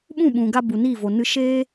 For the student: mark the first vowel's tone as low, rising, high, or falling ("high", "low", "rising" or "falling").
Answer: falling